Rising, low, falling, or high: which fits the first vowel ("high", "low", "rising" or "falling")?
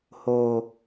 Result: low